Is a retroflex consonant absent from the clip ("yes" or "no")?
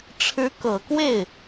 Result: no